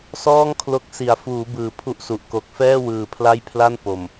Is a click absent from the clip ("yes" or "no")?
yes